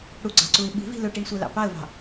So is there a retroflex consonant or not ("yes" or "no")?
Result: yes